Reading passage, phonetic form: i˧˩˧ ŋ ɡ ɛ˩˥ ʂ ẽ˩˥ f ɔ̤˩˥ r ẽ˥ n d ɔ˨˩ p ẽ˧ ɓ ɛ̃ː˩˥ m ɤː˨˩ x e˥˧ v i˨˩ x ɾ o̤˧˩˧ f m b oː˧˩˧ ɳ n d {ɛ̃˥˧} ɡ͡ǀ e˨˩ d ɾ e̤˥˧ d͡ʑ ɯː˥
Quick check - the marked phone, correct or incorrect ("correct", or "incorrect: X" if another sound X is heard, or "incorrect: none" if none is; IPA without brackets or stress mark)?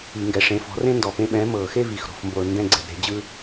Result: correct